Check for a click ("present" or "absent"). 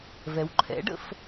present